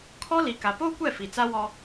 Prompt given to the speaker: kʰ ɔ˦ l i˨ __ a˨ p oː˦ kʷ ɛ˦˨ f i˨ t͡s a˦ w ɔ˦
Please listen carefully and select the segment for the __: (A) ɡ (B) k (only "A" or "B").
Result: B